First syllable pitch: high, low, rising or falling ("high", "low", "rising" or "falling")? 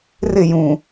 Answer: falling